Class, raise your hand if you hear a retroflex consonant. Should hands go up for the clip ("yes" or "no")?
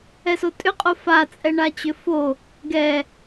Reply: yes